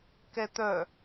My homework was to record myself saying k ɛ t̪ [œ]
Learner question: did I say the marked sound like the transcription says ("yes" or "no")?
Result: yes